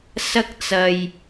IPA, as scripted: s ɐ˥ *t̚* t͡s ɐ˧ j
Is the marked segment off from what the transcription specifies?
yes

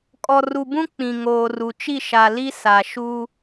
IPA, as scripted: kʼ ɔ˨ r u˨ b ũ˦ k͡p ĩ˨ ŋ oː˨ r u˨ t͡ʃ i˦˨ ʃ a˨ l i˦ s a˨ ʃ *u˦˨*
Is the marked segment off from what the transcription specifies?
yes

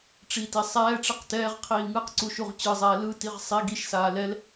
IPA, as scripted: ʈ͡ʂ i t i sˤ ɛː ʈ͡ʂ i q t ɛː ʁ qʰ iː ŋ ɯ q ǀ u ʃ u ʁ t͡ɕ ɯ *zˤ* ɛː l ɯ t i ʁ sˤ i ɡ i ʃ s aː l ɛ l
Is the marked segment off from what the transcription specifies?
no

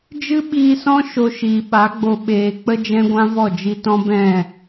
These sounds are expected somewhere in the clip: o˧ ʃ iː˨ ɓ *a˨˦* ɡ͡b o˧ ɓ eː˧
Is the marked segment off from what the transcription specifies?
no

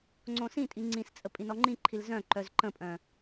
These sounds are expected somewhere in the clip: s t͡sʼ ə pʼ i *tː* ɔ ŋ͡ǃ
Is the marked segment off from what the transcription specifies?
yes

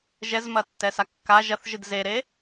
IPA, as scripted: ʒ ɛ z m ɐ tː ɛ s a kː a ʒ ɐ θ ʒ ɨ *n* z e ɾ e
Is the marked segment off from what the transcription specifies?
yes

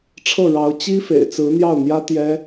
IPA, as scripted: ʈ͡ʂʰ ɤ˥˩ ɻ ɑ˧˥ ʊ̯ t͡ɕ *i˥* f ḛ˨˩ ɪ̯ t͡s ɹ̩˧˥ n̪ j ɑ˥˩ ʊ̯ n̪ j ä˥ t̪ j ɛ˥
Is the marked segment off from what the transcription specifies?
no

